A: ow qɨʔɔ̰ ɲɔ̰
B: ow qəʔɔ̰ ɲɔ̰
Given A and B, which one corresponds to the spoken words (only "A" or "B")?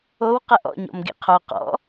B